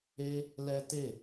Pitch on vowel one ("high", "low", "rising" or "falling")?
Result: high